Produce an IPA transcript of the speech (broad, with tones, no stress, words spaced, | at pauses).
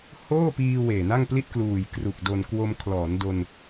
hoː˥˩piː˧ weː˨˩na˥˩ŋpli˥˩t̚ kluː˨˩jkru˨˩k̚ do˧n kwo˧mkʰlɔː˩˦n do˧n